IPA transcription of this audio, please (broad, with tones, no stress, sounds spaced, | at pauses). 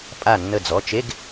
pʼ a˧˩ nː ə˧˩ d͡z ɔ˩˧˩ t͡ʃ e˧˥˧ ɡ